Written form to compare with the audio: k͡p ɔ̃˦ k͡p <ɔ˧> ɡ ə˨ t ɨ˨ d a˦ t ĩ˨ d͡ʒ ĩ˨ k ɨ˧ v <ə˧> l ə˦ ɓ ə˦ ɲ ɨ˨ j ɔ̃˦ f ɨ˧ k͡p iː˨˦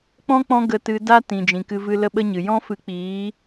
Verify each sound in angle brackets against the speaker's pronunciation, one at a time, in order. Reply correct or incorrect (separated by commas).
incorrect, incorrect